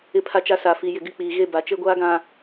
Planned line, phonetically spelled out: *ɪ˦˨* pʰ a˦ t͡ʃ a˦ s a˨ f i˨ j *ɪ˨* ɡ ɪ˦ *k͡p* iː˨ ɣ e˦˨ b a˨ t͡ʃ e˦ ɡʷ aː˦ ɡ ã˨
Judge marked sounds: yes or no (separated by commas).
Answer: yes, yes, yes